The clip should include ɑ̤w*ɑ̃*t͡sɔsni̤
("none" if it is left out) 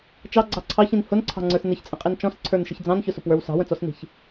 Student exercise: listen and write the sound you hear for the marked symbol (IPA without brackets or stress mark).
ə̃